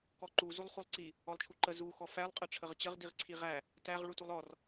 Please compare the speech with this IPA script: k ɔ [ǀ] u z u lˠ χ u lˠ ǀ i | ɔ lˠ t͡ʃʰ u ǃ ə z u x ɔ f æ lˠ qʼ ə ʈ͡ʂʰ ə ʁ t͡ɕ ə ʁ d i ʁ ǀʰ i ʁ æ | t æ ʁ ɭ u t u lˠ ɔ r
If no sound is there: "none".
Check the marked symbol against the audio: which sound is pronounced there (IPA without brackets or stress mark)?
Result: ǃ